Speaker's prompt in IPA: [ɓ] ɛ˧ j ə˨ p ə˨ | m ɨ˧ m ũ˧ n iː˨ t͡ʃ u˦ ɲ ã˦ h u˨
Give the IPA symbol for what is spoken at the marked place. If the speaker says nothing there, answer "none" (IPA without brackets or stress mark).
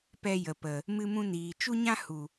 p